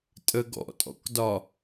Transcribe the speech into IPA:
tʼ ə ɡ ɔ̰ tʼ ɔ̰ k d ɒ

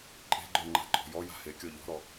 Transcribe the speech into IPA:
ǃʼ e̤ ɡ͡ǃ ə˞ ŋ͡ǃ a̤ ǃʼ ɔ̤ j ɔ j a̤ h e kʲ ɔ ʎ ɔ̤ ɾ ɔ

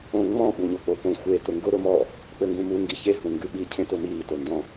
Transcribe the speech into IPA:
õ ŋ͡m ɔ̃ ɓ u ɲ o k͡p o p õ xʷ e t ʊ ŋ ɡ ʊ ɾ ʊ m ɔ | k͡p ɘ ŋ ɡ ũ m u ŋ ɡ i ç e ɦ ũ ŋ ɡ ʉ ɓ i cʰ ẽ t ʊ m iː t o n d ɔ̃

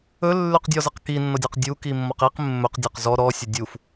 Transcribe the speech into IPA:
ɵ lː ʉ q dʲ ɔ z ə q k i nː ɔ dʲ ɔ q dʲ u k i mː ɔ q i q mː ɵ q dʲ ɔ q z ɔ ɾ ɔ sʲ ə dʲ u f

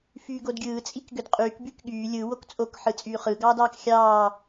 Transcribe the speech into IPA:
f yː ɡ o d ɡʲ ɯː t͡sʼ i k ɡ ø d qʼ yː k b y k ɠ yː lʲ ɯ w o k t͡sʼ o k ħ ɯ t͡sʼ yː χ ɯ ɡ ɑː d ɑː k xʲ ɑː

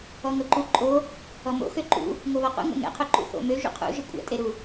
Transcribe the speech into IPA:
ɔ ŋ o ǃ u ǃʼ o | ɔ m o̰ x ø ǃ ṵ | ŋ o β ɔ q ṵ ŋ o̰ ŋ ɛ̰ qʰ o ǃ ṵ θ o̰ m ø ʒ ṵ qʰ ṵ ʒ ɘ kʷʼ ɛ̰ tʼ e ɾ u

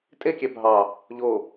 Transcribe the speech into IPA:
tʼ e kʲ æ bʱ ɑ | ʎ o

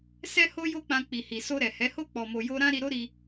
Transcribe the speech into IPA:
s ɛ˦ h o˦ j o˦ k͡p ã˧ k͡p i˨ h i˨ s o˧ ɾ ɛ˨ h ɛ˨˦ h o˦ k͡p ɔ˧ m o˧ j o˦ ɾ ã˦ ɾ i˧ ɾ o˦ ɾ i˧

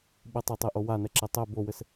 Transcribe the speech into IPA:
ɓ ɨ tˤ ɨ tˤ e ʔ o w a n ɛ ǁ e tˤ ɛ b o w ɘ s

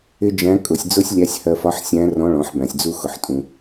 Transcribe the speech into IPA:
ɪ˥ d͡ʒ æ̃˧˥ kʼ ʊ˩˧ sʲ d͡z ʊ˥ sʲ lʲ æ˧˥ sʲ h ɜ˧ f ɒ˧˥ ħ sʲ æ̃˧˥ r ɔ̃˧˥ ɭ ɔ̃˩˧ ħ b æ̃˩ sʲ d͡z u˧ x ʊ˩ ħ tʼ ũ˩

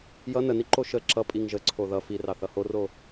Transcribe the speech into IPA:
j ʌ n ə n i ǃ o ʃ ə ǁ ʌ pʼ i ŋ ʒ ə ǀʰ o ð ʌ f i r ɑ θ ʌ h o r o

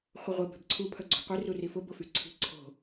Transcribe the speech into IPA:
χʷ ɪ ʁʷ ɪ b e̤ b ǀʰ u pʰ œ ɡ͡ǀ o̤ qʷ i r u r i f ʊ b ʊ f y ǀʰ i̤ ǀʰ o̤

